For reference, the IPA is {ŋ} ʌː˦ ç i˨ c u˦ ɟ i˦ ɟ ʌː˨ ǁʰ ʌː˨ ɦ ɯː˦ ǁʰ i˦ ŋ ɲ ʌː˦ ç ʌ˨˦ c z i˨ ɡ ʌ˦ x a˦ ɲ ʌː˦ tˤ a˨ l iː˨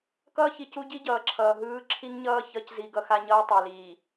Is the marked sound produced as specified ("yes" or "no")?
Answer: no